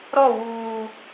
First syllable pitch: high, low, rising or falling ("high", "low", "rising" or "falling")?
falling